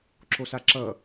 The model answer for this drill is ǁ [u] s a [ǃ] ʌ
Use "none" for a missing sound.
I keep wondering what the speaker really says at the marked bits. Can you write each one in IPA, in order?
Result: o, ǁ

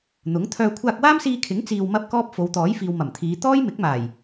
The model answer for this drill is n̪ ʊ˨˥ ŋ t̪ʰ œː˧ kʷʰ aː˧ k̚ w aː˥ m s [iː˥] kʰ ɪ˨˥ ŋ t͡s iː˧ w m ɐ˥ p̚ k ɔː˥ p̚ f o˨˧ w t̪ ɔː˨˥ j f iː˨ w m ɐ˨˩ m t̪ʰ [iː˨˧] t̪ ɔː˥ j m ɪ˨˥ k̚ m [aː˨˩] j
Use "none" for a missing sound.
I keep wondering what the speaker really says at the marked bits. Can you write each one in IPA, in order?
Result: iː˧, iː˨˧, aː˨˩

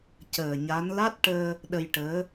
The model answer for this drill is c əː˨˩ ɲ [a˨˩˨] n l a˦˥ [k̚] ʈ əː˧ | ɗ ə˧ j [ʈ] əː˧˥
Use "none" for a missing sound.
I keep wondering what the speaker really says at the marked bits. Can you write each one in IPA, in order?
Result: a˧˥, t̚, ʈ

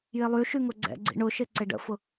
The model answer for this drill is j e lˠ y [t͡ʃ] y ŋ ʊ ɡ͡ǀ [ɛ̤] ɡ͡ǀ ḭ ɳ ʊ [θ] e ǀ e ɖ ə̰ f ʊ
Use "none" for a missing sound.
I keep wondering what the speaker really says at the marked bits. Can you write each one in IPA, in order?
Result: ʃ, ɛ̰, ʃ

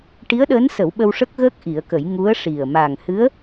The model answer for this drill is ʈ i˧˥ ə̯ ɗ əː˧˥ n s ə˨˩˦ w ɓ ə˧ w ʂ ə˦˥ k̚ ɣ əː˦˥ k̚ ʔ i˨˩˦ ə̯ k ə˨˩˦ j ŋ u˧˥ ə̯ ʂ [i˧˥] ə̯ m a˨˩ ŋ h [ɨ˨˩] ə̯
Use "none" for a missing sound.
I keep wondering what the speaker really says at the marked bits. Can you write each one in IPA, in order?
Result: i˨˩, ɨ˧˥

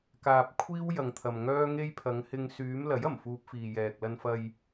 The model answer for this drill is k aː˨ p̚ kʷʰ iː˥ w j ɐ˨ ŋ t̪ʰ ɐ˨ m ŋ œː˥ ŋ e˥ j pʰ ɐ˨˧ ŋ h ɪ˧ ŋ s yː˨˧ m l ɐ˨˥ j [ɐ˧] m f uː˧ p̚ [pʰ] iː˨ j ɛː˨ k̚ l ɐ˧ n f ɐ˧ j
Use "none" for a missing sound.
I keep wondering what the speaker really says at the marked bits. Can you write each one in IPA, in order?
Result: ɐ˨˩, f

